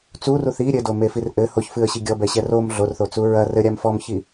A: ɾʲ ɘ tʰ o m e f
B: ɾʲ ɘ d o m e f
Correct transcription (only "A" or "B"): B